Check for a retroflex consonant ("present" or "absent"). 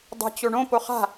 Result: present